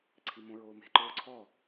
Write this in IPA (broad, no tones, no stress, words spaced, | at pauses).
ǀʰimõɹoːme̤ ǃoːǀʰɔ